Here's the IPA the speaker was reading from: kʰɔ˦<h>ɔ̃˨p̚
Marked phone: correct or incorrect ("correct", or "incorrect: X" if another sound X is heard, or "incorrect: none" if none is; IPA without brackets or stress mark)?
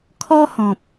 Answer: correct